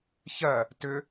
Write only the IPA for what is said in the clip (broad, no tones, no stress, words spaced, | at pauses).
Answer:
çɜ | tʏ